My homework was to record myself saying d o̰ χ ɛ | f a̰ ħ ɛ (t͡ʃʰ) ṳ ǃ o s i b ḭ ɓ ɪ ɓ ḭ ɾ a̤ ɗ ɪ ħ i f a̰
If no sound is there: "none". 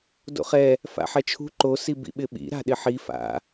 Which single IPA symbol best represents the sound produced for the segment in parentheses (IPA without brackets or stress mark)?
t͡ʃʰ